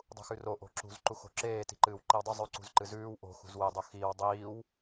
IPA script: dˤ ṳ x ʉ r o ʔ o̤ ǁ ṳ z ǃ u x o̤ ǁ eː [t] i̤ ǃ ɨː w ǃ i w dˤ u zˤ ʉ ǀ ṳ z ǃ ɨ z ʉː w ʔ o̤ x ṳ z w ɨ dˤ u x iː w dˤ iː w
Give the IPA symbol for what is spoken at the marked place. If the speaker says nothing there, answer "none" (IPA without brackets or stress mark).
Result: t